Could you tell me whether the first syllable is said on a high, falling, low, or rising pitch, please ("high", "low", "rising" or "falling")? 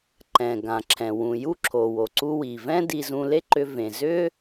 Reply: low